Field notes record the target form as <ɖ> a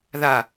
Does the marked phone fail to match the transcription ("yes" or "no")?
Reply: yes